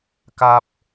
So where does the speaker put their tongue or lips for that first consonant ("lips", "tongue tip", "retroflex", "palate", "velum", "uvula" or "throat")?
velum